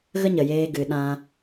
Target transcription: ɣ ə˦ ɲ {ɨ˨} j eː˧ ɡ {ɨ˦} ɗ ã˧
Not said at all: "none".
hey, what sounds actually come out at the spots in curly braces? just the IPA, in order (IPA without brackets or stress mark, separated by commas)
ə˨, ɨ˨